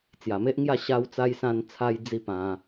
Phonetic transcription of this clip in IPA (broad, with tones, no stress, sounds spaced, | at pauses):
t͡s j a˨˩ m e˦ ʔ ŋ j a˥˧ ɕ a˧ w t͡s a˧ j s ã˧ n t͡sʰ a˦ j d͡z i˦ p ã˧